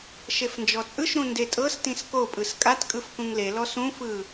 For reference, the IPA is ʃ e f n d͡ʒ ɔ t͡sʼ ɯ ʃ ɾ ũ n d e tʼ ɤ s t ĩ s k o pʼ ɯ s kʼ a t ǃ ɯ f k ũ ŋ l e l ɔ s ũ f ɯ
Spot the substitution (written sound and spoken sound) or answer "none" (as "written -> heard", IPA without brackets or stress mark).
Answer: ǃ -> kʼ